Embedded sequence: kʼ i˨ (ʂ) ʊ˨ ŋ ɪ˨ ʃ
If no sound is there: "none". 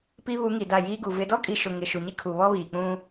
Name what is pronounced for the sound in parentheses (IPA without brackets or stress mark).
ʃ